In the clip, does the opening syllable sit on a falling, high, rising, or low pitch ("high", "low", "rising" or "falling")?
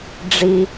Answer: low